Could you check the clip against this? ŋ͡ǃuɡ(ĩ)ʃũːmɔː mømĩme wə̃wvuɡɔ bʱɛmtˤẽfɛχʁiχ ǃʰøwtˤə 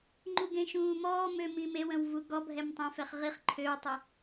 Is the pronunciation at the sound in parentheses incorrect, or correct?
incorrect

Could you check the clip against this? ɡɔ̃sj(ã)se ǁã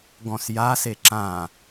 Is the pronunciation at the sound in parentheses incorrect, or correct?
incorrect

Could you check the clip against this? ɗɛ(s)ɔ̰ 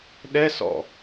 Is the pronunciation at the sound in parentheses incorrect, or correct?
correct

